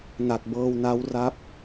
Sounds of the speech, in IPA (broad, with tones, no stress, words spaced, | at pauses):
na˨˩t̚bɤː˧wna˦˥w ra˦˥p̚